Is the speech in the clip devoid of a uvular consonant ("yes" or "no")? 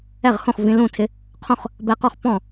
no